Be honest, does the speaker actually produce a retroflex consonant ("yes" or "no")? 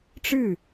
yes